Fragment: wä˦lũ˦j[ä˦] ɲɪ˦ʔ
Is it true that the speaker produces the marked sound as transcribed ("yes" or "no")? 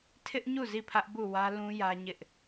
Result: yes